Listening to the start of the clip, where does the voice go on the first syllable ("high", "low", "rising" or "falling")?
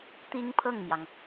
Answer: high